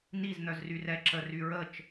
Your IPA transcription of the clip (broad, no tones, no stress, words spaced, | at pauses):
niz n̪œzryrɛ ǁə ryɹət͡ʃ